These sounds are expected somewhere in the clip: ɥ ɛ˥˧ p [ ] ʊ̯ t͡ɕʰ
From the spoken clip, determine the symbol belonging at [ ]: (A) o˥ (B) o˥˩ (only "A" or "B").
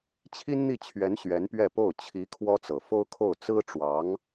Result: B